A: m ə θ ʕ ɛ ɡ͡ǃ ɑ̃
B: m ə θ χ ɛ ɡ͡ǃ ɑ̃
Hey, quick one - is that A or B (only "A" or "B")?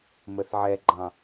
A